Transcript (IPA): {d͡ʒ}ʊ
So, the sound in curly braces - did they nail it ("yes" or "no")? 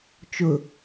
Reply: no